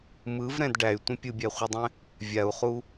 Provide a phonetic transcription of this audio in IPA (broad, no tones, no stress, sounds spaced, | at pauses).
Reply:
m ɯ v ɾ ɛ̃ d ɖ æ y̯ tʷ ə̃ pʲ ɯ bʲ æ χʷ ɯ dˤ ɛ̃ | vʲ a u̯ χ u